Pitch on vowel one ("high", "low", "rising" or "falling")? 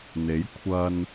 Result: rising